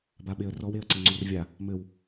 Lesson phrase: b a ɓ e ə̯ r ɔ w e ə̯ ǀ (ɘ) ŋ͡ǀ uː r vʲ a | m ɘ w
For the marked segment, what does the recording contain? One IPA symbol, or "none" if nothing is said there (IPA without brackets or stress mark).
ɘ